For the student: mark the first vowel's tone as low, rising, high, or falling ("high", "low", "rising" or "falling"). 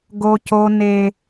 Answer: high